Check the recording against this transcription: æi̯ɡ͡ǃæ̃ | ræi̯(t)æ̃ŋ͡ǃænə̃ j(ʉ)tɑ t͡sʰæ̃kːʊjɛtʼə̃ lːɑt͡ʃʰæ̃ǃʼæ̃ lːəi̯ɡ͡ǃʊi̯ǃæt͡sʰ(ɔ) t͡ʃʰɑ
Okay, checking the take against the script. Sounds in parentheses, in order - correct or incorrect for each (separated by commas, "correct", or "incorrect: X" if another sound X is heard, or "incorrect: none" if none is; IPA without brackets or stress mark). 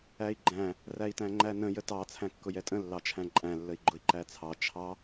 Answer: correct, incorrect: ə, incorrect: ɑ